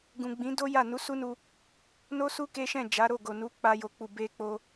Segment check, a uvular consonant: absent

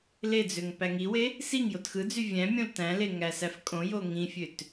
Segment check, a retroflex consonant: absent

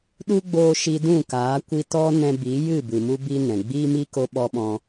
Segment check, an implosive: present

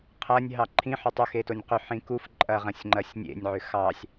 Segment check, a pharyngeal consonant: present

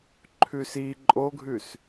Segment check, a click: present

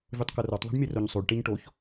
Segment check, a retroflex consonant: present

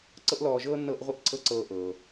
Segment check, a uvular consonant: present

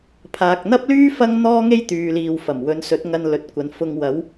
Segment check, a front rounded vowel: present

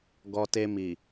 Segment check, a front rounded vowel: absent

